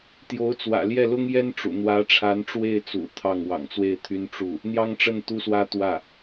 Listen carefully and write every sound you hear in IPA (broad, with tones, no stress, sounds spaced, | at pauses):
t̪ j o˧˥ ʊ̯ t͡s w ä̰˨˩ l j ɛ˥˩ l ʊ˥ ŋ j ɛ˥ n ʈ͡ʂ ṵ˨˩ n̪ w ä˧˥ ʈ͡ʂʰ a˧˥ n ʈ͡ʂ w e˥˩ ɪ̯ t͡s ṵ˨˩ t̪ʰ ɑ˥˩ ŋ w ɑ̰˨˩ ŋ t͡s w e˥˩ ɪ̯ t̪ʰ y˥ n ʈ͡ʂ u˥˩ | n̪ j ɑ˥ ŋ ʈ͡ʂ ə˥˩ n t̪ u˥ s w ä˥ t̪ w ä˥˩